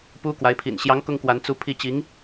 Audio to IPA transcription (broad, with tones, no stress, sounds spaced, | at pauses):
p u˥ k w a˧˥ ɪ̯ pʰ ḭ˨˩ n ɕ j ɑ˧˥ ŋ k ʊ˥ ŋ k w a˧˥ n t͡s u˧˥ pʰ i˧˥ t͡ɕ i˧˥ ŋ